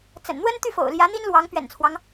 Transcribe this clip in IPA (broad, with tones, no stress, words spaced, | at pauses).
t͡sə̰˨˩nn̪wə˥n t̪y˥˩fo̰˨˩ʊ̯ljä˧˥ n̪i˥nlwɑ˧˥ŋ pɥɛ̰˨˩nt͡sʰwɑ˦ŋ